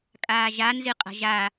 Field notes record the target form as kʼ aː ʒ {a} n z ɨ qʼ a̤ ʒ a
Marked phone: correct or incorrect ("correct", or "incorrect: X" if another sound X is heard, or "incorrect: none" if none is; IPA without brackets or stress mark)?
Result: correct